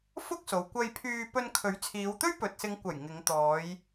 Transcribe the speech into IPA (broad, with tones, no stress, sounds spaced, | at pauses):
f ʊ˥ k̚ s o˨ w kʷ ɐ˧ j pʰ yː˧ p ɵ˧ n kʰ ɵ˨˥ ɥ t͡sʰ iː˨˧ w t̪ ɵ˥ ɥ p ɵ˨ t̚ s ɪ˨˧ ŋ kʷ ɐ˨˩ j ŋ ɪ˨˧ ŋ t̪ ɔː˨˧ j